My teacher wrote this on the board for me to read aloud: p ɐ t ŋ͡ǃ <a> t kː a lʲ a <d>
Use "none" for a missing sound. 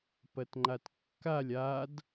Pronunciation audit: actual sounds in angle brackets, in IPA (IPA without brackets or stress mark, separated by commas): a, d